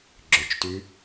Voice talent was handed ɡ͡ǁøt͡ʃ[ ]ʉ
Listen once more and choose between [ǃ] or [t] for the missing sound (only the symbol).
t